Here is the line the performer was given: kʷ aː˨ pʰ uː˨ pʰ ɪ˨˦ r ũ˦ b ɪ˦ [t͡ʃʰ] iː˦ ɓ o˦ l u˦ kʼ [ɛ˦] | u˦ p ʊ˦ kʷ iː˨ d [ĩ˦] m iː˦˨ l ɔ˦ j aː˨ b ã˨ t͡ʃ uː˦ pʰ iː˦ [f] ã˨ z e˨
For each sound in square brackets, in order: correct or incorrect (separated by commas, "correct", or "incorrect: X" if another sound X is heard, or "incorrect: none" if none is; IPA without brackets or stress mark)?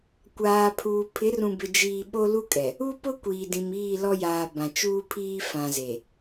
incorrect: d͡ʒ, incorrect: ɛ˨, incorrect: ĩ˨, correct